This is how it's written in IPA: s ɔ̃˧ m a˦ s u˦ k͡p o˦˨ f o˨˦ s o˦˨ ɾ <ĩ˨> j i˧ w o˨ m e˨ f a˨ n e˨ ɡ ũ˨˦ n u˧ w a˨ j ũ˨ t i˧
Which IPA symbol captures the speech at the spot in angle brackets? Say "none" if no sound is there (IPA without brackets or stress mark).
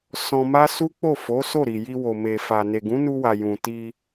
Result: i˨